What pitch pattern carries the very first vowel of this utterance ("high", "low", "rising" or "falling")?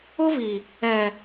high